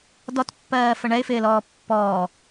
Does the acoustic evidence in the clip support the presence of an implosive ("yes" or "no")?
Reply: no